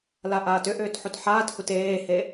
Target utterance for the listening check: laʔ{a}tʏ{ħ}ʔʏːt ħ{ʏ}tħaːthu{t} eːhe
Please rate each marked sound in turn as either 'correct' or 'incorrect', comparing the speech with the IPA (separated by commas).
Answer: incorrect, incorrect, incorrect, correct